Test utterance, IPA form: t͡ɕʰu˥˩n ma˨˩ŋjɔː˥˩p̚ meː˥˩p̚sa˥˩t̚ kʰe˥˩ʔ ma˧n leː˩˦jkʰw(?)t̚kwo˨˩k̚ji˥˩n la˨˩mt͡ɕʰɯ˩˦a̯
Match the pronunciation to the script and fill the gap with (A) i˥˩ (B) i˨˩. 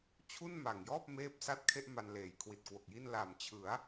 B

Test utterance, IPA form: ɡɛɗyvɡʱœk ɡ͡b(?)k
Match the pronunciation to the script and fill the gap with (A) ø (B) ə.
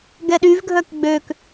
A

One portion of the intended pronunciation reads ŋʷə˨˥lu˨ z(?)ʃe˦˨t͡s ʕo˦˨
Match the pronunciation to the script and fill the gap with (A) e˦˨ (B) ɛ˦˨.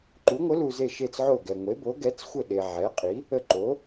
A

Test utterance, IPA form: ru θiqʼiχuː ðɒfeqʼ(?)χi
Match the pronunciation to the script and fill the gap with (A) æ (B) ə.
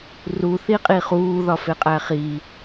A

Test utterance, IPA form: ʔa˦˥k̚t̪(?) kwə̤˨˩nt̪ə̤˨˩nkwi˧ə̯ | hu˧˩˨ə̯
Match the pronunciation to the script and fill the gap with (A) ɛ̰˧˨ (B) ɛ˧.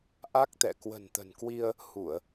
A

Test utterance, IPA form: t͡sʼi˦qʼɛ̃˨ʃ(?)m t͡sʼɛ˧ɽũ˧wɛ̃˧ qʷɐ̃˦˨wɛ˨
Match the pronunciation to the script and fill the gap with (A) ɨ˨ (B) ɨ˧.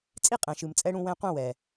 A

